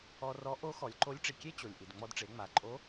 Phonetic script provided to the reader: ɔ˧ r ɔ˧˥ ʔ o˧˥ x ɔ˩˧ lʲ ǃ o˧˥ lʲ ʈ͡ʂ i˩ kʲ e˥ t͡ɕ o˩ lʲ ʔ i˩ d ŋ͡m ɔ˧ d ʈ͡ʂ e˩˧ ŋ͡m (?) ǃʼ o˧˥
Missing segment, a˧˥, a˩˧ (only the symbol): a˩˧